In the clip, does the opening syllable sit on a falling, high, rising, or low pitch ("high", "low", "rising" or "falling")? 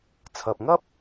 low